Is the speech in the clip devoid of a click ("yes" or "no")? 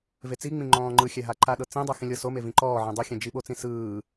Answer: no